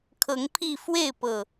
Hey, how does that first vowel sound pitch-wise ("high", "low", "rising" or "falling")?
rising